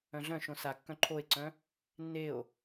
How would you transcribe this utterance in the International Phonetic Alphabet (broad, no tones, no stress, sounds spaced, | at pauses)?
œ̃ ɮ œ̃ ʃ õ s a kː œ̃ ǃʰ o e̯ ǀ œ̃ | nː e o̯